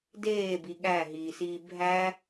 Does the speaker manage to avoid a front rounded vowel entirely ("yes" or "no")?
yes